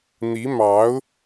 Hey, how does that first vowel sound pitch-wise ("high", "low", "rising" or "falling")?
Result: rising